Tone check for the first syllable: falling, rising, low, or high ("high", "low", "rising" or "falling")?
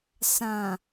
low